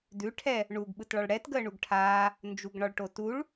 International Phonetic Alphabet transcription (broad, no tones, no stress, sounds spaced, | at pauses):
d ʉ ʈʰ ɛ | ɳ u ɡ ɓ ɯ t ɭ ɒ ɭ ɽ ɛ t ɡ əː ɳ u ɡ ʈʰ aː | n d͡ʒ u ɡ ɳ ɒ ɭ ʈ o t u ɭ